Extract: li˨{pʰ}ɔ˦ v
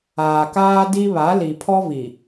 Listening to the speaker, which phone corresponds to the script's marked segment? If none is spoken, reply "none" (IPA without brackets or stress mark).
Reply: pʰ